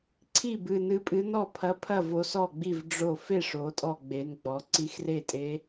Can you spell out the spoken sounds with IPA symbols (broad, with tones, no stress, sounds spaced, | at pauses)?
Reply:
ǀʰ i˥˩ b ɨ˧˩ n ɨ˧˥ pʼ ɨ˧˥ n ɔ˥˩ pʰ ɐ˧˥ pʰ ɐ˥˩ v o˧˥ s ɔ˥˩ ɡ͡b i˥˩ v ɖ͡ʐ o˧˩ f e˥˩ ʂ o˩˧ tʼ ɔ˧˩ ɡ͡b e˩˧ n ɡ͡b ɔ˩˧ ǀ i˧˥ x r e˥˩ tʼ e˧˥